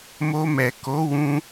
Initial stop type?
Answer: plain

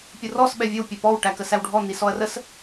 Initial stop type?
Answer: plain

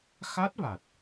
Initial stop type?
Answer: plain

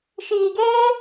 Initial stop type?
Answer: plain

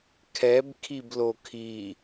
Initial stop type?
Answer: aspirated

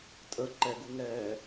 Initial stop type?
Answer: ejective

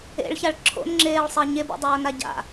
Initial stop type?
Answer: click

